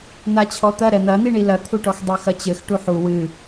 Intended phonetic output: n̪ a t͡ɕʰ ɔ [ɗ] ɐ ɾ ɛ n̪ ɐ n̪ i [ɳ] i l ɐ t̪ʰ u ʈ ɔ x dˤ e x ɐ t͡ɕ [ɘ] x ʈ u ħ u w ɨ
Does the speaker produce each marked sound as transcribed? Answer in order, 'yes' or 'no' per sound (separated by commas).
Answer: no, yes, yes